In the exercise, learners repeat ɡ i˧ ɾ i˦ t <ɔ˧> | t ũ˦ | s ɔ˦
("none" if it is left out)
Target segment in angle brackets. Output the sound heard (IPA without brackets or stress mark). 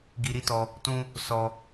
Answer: ɔ˧